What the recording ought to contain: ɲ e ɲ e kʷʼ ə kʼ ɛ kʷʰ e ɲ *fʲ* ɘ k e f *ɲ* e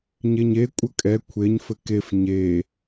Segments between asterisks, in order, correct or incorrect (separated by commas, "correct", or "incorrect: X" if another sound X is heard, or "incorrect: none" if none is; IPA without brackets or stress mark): incorrect: f, correct